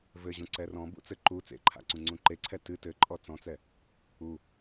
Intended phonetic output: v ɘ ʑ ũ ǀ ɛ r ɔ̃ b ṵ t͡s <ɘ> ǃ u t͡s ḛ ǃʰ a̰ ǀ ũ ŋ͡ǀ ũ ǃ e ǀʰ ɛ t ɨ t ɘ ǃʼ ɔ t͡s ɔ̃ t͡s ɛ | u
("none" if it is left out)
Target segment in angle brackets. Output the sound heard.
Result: ɘ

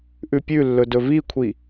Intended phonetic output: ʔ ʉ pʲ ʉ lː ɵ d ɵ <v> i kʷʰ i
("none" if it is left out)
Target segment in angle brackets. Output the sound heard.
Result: v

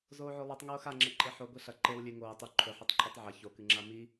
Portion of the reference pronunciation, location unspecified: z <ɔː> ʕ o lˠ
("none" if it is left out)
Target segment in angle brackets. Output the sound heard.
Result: oː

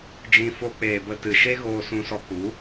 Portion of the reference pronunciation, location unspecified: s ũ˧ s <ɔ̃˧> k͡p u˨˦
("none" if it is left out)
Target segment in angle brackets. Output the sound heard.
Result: ɔ˧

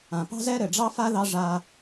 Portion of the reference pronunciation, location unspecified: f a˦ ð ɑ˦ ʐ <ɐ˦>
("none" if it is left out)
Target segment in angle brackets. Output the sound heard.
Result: a˦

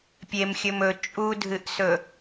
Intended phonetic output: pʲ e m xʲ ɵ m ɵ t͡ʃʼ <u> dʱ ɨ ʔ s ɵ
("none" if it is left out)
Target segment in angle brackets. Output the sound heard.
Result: u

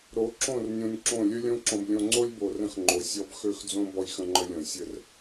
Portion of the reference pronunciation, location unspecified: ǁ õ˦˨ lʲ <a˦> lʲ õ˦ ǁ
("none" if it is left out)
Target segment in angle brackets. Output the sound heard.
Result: ə˦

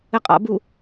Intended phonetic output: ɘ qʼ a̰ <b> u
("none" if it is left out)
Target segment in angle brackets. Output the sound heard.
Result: b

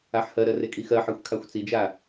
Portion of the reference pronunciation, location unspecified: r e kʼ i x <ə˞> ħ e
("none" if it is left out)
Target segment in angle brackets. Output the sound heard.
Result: ɜ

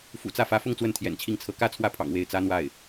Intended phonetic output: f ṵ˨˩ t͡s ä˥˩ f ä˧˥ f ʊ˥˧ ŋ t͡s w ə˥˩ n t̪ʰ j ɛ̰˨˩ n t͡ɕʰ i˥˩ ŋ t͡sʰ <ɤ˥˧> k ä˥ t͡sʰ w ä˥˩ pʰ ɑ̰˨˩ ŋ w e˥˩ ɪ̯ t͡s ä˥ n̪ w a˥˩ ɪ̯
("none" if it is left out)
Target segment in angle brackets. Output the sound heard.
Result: ɤ˧˥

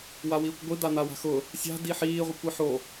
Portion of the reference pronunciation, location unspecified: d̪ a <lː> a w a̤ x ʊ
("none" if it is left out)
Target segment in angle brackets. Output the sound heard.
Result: n̪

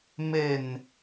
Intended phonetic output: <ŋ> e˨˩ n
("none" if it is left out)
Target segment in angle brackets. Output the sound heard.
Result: m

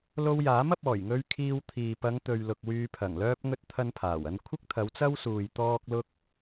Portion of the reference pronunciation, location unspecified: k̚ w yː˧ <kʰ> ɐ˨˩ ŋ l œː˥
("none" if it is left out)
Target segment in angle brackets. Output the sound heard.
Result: pʰ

